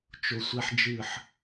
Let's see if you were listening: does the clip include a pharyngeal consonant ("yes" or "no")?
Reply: yes